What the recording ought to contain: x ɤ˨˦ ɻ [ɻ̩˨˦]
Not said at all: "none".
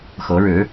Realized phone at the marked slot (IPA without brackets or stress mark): ɻ̩˨˦